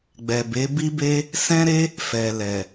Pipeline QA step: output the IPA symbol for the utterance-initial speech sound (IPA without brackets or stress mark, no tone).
ɡ͡b